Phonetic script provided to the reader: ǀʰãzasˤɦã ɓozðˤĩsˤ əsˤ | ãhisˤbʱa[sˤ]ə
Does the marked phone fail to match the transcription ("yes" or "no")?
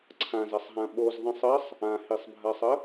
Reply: no